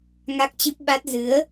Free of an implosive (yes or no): no